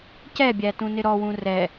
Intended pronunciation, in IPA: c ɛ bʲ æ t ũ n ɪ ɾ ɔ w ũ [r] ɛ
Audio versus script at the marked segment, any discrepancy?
no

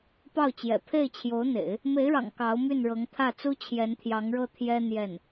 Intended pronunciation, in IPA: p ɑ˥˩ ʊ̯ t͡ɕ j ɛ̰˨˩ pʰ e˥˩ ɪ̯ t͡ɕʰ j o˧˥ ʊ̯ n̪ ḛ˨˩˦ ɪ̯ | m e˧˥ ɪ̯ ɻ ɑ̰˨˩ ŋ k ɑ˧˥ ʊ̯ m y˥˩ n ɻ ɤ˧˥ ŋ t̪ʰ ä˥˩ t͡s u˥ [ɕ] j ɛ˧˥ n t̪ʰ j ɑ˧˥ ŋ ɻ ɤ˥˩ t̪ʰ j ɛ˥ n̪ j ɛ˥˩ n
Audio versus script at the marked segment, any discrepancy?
yes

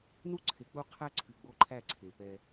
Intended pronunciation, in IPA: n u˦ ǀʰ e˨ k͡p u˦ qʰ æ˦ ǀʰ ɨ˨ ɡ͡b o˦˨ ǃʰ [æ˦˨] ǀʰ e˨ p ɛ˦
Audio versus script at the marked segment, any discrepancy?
no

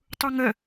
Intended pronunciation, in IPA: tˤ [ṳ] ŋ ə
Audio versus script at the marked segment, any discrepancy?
yes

